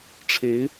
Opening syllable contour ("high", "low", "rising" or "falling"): rising